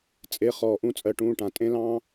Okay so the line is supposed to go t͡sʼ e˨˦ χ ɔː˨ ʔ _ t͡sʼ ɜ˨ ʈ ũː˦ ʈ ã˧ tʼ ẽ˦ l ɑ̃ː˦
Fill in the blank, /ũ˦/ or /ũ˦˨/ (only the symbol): ũ˦